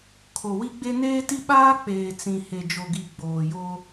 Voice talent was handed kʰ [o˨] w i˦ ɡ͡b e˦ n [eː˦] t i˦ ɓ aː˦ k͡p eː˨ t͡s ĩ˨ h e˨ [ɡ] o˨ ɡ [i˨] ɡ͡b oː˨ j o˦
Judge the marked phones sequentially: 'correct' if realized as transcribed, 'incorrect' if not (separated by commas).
correct, correct, incorrect, correct